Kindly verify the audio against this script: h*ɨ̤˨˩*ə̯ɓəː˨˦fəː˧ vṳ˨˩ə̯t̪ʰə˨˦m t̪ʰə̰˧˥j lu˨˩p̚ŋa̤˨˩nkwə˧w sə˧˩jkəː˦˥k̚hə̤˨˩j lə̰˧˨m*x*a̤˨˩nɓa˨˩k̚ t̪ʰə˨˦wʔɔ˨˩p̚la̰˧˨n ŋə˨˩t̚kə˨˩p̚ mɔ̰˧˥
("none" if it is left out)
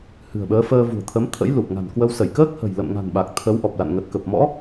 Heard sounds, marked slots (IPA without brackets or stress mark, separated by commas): ɨ̤˨˩, ŋ